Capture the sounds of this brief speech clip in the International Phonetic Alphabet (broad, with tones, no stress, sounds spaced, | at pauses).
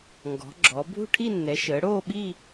ŋ ɡ ɔ̤˩˧ ɡ͡ǁ ɔ˩˧ bʱ ṳ˥˧ ʈʰ i˥˧ nː ɛ˩˧ ʃ əː˩˧ ɽ oː˥˧ ɓ i˥˧